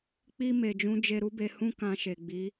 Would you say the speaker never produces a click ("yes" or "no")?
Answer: yes